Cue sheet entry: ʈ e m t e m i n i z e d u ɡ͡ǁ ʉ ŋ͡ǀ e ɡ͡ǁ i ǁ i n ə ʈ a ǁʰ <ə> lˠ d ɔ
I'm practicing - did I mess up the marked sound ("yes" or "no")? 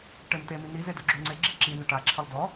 no